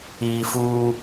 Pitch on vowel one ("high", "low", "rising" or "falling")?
low